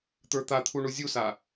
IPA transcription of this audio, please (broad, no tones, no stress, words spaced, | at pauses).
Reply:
t̪ə˞t̪at̪ʰu ɳuzʲusa